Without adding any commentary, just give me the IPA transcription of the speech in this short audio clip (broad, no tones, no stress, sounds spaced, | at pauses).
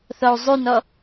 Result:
θ ɔ u̯ zˤ ʉ n ɔ